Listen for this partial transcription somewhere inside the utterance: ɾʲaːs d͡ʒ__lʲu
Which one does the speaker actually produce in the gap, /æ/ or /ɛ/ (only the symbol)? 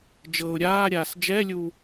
ɛ